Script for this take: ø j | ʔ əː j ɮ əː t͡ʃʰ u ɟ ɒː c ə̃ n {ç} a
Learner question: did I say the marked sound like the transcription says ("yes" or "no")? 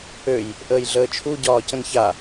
yes